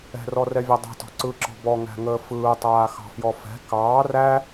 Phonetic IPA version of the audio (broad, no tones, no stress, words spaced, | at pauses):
ɛ̤rɔrɛvʲa dˤa̤tɔ̤ ǀɯǁɔ̤ bɔŋæ̤ŋəː fɯːtˤaːxɑ̤fjɔ fɛ̤ kɑː ræ